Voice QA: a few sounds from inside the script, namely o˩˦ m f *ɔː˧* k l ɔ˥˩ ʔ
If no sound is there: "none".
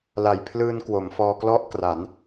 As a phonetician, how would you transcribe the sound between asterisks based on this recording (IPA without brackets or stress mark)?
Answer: ɔː˧